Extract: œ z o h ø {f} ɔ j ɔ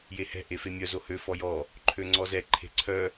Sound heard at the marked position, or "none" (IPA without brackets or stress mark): f